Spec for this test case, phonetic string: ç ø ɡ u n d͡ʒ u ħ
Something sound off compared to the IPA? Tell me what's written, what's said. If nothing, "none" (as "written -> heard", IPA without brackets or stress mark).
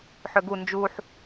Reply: ç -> ħ